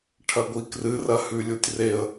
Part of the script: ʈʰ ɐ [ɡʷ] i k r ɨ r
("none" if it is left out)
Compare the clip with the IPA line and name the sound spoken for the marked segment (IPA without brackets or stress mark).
ɡʷ